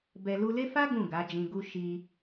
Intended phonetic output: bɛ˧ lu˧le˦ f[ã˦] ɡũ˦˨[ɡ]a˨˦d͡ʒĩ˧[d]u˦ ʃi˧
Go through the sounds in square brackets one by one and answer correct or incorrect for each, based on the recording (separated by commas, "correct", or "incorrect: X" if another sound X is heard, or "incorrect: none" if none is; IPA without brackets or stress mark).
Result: incorrect: a˦, correct, incorrect: ɡ